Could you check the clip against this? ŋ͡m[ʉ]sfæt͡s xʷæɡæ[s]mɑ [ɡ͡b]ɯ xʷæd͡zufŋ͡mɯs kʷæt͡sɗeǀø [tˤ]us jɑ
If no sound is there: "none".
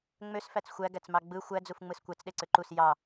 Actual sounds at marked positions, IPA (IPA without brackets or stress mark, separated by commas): ø, t͡s, ɡ͡b, ǃ